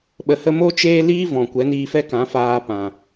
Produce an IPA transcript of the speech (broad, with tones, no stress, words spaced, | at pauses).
ɓə˨hə˧mo˦ t͡ʃeː˧ liː˦vɔ̃˨ kʷɛ˨˦niː˧fɛ˦kã˨˦ faː˧pã˨